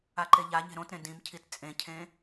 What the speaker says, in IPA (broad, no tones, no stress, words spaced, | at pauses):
aǃeʎaɲe̤ ɾõtɾẽ dĩmcʰit t͡sʼẽcʰẽ